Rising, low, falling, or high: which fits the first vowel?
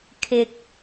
low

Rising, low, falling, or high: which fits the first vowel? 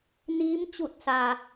rising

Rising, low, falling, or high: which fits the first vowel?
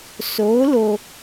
rising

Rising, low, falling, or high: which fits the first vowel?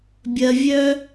low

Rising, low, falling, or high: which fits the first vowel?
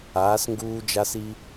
rising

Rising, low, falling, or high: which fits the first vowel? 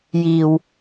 low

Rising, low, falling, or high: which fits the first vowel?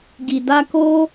low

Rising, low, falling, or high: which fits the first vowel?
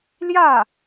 falling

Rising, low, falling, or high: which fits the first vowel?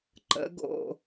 rising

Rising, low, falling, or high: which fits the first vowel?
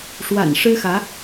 low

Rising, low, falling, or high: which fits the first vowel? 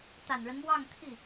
low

